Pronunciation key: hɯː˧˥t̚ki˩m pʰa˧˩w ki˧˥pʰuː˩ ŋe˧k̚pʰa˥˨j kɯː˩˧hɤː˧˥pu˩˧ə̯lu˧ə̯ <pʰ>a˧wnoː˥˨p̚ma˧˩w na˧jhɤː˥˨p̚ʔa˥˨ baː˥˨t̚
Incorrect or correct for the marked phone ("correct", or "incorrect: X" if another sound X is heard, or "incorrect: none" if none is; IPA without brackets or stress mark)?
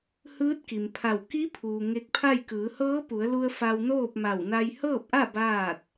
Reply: incorrect: f